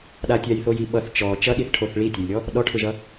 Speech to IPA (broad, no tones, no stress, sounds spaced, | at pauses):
ɗ a tʲ a j θ o j i ɓ ʌ θ t͡ʃ ɔ t͡ʃ ʌ ɗ i θ ʈʰ o θ ɭ i tʲ ʌ j lʲ ɔ | ɗ ɔ ʈʰ ʏ ʒ ʌ